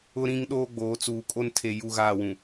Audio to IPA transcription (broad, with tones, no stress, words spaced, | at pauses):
ʊ˦ɾĩ˦ŋ ɗoː˦ɡ͡boː˨˦t͡suː˨kʼo˦n tʰe˨ ju˦˨ɣaː˦˨wũ˨